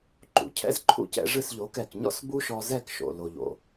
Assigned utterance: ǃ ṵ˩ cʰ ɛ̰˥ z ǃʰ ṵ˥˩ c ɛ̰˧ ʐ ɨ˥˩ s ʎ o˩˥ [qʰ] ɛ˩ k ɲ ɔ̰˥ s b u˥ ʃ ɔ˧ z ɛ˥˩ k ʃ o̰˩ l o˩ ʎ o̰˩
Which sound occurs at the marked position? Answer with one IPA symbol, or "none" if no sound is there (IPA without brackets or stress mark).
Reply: k